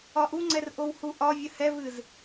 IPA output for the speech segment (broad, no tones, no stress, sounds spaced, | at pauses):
ɒ ʔ u ŋ͡ǀ ɛ r ʔ o w h u ʔ ɒ vʲ ə h ɛ v ɨ z